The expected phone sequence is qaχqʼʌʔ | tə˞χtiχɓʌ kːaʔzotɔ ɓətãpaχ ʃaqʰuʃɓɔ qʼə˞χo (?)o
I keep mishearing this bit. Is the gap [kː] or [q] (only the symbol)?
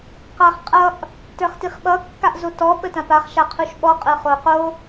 q